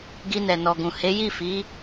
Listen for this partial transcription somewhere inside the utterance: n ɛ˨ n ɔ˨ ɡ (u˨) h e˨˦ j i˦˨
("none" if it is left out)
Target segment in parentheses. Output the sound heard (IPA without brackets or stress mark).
ũ˨